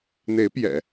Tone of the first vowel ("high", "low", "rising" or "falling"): rising